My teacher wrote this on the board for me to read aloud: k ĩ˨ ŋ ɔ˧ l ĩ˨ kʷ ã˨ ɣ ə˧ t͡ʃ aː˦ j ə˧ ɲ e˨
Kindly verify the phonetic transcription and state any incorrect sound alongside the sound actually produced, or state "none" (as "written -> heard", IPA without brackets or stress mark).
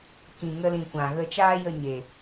ɔ˧ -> ə˧